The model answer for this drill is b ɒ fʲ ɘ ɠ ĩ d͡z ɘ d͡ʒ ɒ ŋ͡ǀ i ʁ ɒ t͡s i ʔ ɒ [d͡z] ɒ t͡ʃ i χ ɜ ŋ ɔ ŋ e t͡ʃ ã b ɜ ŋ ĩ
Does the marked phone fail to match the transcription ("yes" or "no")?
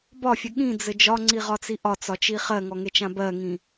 yes